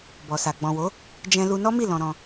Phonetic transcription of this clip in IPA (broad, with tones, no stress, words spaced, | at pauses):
bɔ˨sa˨ ɡ͡bɔ̃˨wo˨˦ | d͡ʒɛ̃˧lu˧ nɔ˦mi˦˨ lɔ̃˧ɾɔ̃˧